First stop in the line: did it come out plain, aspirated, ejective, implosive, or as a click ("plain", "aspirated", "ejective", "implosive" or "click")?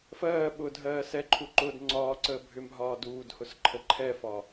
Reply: implosive